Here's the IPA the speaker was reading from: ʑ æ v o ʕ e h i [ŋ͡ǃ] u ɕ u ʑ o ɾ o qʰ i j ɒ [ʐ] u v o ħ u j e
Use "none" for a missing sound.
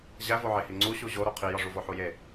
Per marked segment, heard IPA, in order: ŋ͡ǀ, ʐ

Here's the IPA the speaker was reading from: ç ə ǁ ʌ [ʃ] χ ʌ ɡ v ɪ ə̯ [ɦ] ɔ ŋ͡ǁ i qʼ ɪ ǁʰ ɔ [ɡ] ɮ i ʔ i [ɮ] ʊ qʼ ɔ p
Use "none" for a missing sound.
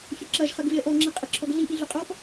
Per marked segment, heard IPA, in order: ʒ, ʔ, ɡ, ɮ

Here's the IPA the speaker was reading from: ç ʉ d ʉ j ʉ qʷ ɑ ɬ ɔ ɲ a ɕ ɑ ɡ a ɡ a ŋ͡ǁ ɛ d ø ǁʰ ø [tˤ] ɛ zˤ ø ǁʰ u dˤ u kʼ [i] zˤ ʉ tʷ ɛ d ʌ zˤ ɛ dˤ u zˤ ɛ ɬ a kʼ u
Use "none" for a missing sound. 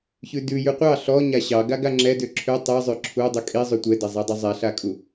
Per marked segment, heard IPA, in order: tˤ, i

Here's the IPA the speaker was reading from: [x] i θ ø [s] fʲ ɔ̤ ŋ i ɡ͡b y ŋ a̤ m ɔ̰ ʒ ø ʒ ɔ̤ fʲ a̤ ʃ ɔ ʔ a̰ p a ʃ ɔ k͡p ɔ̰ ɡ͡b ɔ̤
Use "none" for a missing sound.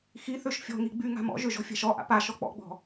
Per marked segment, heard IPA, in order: x, ʃ

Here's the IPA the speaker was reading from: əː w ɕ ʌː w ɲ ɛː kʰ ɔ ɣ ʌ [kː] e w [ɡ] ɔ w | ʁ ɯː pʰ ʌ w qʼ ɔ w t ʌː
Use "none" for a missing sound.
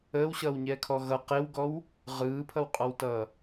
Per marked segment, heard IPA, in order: q, ɡ

